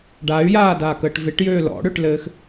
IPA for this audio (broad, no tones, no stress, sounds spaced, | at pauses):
ɖ a y̯ j aː d aː k əː ʈ v ɪ ʈ j øː l ɔ̰ ɽ ø ʈ l ɘː x